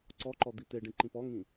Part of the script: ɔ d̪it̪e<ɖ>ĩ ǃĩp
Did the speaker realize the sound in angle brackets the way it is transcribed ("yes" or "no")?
yes